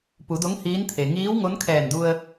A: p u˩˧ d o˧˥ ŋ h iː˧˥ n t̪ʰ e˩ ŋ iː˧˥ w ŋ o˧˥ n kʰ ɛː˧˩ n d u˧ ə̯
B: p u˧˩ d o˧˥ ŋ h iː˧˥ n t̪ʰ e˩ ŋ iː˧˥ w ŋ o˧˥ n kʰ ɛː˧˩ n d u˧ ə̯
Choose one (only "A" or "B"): A